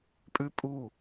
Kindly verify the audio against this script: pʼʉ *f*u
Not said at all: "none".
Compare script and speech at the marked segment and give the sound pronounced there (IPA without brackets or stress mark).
pʼ